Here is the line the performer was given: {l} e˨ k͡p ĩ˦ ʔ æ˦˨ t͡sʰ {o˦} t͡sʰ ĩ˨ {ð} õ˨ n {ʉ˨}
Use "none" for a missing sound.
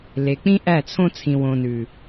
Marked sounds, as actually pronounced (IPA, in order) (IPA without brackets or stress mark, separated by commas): l, õ˦, w, ʉ˨